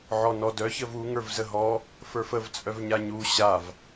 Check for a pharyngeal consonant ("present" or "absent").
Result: present